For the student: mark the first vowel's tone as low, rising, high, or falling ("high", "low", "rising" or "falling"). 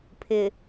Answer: low